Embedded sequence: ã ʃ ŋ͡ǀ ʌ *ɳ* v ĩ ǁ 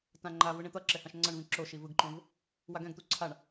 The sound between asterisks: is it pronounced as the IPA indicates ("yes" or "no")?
yes